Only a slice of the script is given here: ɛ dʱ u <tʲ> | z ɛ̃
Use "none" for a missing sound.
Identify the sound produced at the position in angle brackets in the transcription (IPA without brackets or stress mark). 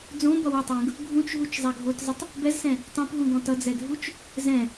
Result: t͡ʃ